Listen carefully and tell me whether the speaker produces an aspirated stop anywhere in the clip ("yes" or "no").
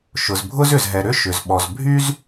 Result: no